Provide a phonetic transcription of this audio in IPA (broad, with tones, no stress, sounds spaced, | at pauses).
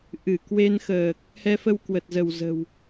ʔ ɨ˧˩ k w e˧ n x əː˨˩ k̚ | h ɛ˧ f ə˧ w k w ə˨˩ t̚ z ə˧˩ w z ə̤˨˩ w